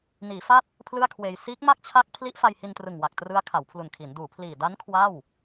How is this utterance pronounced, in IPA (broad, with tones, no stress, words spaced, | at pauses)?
niː˩˦fa˦˥t̚ | pʰlɯ˥˩a̯kʰweː˧j siː˦˥k̚ ma˥˩k̚t͡ɕʰa˦˥k̚ pʰli˦˥ʔfa˧jhi˧ntrɯ˨˩ŋ wa˨˩k̚ trɯ˦˥a̯kʰa˩˦wpʰlu˨˩nkʰi˩˦n duː˩˦pʰliː˨˩ da˦˥n kʰwa˥˩w